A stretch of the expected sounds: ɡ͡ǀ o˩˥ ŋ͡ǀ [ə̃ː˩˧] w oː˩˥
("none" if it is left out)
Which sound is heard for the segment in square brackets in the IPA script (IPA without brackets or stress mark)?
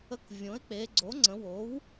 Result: ə̃˩˧